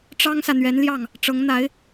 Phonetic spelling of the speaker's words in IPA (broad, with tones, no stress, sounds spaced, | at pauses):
ʈ͡ʂ ɑ˥ ŋ s ä˨ n̪ ɥ ɛ˧˥ n l j ɑ˥˩ ŋ | ʈ͡ʂ ɤ˧˥ ŋ n̪ a˧˥ ɪ̯